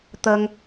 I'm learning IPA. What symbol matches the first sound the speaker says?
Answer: t̪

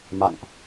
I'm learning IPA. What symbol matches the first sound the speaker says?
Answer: m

